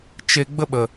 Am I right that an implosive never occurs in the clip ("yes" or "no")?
no